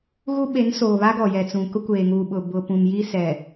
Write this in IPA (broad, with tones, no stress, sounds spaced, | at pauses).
ɣ u˦ ɓ e˨˦ n s oː˨ β a˦ ɡ ɔ˨ j ɛ˨ t͡s ũ˨ k ʊ˦ kʷ eː˨ ŋ uː˨ ɓ ʊ˨ b ʊ˨ p ũ˨ m j i˦ s ɛ˨